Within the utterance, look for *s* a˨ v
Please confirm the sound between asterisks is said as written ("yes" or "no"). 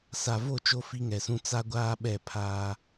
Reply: yes